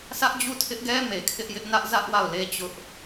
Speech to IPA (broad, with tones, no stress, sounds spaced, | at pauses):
s ä˦ ʔ d͡ʑ u˦˨ tʰ ɪ˦ ʔ ɡ ɛ˦ m e˨ kʰ ɪ˦ ʔ j ɪ˦ ʔ n ä˦ ʔ z ä˦ ʔ w a˦˨ ʊ̯ l e˦ t͡ɕ ʊ˦ ʔ